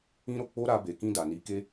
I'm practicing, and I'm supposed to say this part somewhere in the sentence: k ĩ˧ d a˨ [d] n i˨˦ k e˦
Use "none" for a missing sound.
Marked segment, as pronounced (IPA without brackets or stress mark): none